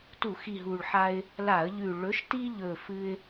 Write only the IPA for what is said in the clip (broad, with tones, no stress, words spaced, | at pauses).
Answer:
tu˧˩˧xi˨˩ ɦu˨˩ɭħa˦ɪ̯ | la˧˩˧ə̯ʎʉ˨˩ ɭɵ˨˥ʃti˦ʎɵ˨˩ fɨ˦ɪ̯